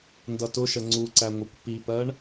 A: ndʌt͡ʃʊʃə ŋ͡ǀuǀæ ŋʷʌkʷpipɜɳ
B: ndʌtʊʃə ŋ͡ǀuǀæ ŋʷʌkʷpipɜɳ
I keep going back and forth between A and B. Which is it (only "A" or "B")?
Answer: B